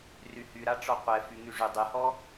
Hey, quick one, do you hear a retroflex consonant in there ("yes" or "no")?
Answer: yes